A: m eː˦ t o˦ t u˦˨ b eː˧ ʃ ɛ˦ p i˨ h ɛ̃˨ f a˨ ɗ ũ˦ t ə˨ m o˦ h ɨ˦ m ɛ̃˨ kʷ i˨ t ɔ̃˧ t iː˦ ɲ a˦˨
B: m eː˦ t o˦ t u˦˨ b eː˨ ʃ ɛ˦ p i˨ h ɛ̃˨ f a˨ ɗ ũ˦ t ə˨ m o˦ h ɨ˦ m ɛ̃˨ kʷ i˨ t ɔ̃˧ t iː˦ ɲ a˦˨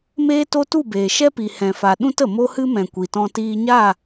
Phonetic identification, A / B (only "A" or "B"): B